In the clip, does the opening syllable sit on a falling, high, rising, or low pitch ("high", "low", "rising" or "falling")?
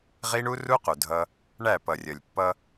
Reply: high